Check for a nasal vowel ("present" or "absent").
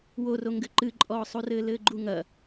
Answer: absent